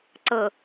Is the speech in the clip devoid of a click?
no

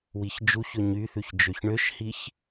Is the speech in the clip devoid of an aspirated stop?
yes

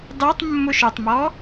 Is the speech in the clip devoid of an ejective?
yes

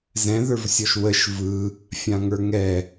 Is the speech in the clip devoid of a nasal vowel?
no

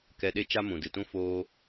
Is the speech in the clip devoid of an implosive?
no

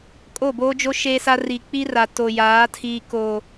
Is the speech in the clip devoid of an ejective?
no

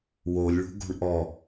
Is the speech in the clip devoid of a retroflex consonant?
no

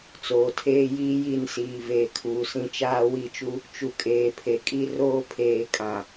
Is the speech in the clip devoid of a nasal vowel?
no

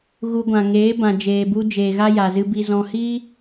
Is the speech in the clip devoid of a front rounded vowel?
yes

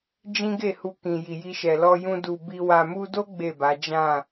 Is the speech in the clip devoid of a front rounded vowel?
yes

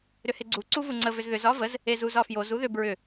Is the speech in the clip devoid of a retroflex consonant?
yes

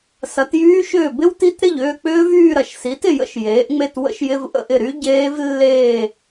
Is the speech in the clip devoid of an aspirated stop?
yes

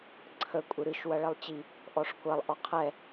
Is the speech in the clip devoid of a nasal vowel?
yes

